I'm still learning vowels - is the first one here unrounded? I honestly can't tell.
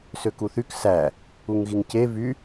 no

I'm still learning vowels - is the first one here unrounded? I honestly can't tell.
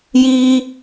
yes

